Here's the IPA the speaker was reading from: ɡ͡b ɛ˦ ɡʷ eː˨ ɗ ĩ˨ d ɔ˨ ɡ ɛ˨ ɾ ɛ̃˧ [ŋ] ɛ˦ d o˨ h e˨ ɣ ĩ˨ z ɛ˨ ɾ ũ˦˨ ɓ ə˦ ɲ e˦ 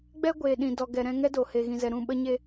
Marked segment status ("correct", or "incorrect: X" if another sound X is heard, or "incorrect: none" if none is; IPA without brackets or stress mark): correct